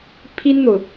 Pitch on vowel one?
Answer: high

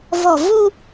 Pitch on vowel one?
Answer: low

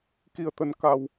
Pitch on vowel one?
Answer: low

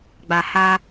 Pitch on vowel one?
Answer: low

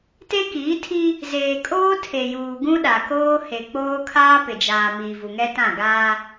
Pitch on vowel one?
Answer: high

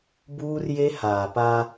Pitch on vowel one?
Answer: high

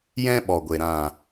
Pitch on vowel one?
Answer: high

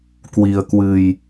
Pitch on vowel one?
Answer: low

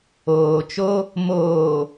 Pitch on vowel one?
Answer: low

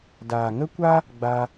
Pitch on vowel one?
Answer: low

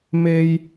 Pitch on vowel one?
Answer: high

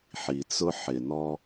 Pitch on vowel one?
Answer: low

